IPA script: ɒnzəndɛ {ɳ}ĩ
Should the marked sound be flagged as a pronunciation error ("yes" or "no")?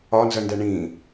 no